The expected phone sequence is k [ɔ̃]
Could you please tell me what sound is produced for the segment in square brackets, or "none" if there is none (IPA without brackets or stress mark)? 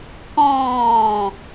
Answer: ɔ̃ː